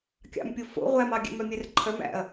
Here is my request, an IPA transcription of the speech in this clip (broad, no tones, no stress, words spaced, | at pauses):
kʲɑ̰mpʲo fo̰ ʁʷæmɑ ɡʲɛ̰mœmʲɛrǃʰœm æ̰ɐ̯